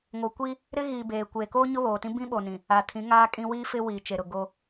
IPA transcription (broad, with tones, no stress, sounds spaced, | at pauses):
ŋ o˨ kʷ i˦ | ɾ ɪ˦ ɣ iː˨ b eː˨ kʷ eː˨ k oː˦ ɲ ʊ˦ β oː˨ t ĩ˦ b ĩ˦ ɓ o˨ n ĩ˨ | a˨ tʰ ĩ˨˦ ŋ aː˦ kʼ ĩ˦ w iː˦ f ɪ˦ w i˨ t͡ʃ e˨ ɾ ʊ˨ ɡ o˦